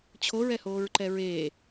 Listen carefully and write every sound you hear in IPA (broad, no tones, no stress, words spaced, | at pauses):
t͡ɕʰoɹɛhoːɹǃɛ ɹeː